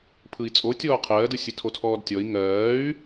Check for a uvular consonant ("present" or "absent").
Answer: present